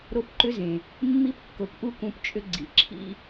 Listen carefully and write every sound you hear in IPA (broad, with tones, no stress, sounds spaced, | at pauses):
ɾ o˦ p ǃ ʏ˦ z ẽ˨ | mː i˧ p kː o˨ p ʔ u˧ k ũ˧ p t͡ʃʼ ʏ˦ ɡ͡ǀ ḭ˨ ǁʰ ḭ˦